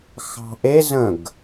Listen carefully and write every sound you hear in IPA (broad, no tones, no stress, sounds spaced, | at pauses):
x ɑ̤ ʔ e z ə̃ ɡ